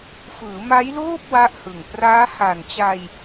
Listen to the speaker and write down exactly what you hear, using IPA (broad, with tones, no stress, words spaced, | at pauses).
fɯː˩˦maː˦˥jloː˥˩p̚ wa˥˩ʔhɯ˨˩ŋ praː˦˥ha˨˩nt͡ɕa˧j